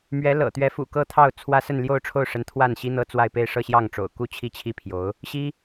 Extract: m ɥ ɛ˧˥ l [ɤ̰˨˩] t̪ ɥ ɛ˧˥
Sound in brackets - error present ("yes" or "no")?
no